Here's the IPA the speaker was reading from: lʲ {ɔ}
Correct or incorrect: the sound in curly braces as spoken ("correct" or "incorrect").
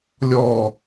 correct